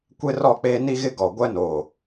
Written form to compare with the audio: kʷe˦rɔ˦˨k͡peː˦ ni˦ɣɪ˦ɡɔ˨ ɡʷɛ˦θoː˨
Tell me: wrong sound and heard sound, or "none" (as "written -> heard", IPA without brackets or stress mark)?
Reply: θ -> n